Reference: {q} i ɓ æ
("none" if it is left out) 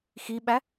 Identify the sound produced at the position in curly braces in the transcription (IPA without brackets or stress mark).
x